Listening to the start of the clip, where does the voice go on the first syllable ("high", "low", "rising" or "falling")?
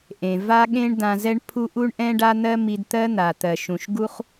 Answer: low